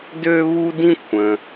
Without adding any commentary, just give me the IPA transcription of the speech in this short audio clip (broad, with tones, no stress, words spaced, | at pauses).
dø˦βu˦dĩ˦ kʷʰə̃˩